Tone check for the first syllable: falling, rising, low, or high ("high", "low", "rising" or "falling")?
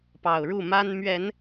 low